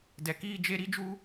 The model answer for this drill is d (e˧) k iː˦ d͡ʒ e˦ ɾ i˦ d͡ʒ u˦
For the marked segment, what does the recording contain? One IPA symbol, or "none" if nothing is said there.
ɛ˧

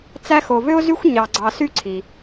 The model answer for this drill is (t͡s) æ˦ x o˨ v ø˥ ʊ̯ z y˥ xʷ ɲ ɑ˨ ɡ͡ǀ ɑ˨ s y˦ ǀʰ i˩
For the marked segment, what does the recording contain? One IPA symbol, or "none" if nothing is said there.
t͡s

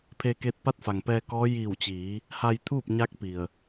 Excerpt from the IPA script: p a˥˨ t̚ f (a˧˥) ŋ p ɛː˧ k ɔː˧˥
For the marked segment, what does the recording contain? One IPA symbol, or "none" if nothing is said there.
a˩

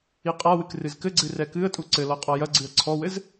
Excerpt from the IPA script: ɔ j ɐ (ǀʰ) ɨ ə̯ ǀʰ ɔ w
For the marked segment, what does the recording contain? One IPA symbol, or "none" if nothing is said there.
ɡ͡ǀ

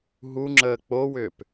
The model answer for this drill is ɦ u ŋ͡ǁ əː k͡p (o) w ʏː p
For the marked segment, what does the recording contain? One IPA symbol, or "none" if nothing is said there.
o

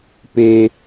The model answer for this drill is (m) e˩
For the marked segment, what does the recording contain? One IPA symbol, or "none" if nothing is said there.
p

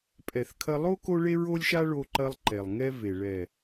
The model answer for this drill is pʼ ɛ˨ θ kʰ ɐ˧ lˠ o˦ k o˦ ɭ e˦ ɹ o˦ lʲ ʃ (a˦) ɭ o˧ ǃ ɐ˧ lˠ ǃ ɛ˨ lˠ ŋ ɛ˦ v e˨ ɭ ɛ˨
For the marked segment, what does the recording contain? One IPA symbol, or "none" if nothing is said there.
a˦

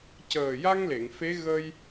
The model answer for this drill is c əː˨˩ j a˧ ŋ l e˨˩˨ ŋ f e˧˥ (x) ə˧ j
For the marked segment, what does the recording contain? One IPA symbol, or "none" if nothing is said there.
ɣ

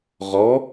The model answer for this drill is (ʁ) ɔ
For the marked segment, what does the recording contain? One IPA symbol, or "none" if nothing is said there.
ʁ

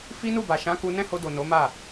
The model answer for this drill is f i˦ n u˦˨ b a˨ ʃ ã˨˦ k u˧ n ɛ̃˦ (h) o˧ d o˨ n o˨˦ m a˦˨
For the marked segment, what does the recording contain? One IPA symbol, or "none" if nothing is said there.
h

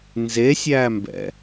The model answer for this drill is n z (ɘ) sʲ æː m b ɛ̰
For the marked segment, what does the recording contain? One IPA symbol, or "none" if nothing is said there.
e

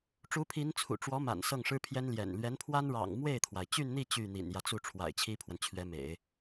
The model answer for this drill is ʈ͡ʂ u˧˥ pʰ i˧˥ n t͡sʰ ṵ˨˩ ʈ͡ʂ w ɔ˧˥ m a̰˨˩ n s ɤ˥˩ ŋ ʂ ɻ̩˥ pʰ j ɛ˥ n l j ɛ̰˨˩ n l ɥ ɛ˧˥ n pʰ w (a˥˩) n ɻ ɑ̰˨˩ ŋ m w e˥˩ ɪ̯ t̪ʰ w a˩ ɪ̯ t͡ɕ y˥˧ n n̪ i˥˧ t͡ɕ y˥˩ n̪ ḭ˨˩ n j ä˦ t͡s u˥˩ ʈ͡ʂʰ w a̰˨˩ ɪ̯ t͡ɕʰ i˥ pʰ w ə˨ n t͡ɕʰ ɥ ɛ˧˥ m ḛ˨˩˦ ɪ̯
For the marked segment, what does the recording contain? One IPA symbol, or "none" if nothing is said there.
a˥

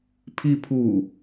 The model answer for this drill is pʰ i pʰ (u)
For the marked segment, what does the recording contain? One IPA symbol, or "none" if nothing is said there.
u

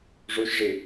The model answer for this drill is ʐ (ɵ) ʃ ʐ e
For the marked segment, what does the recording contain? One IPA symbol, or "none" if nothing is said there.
o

